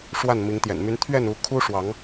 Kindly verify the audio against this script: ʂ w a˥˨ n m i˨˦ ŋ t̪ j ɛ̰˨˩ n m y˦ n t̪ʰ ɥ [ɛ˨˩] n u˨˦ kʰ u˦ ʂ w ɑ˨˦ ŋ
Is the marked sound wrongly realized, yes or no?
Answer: yes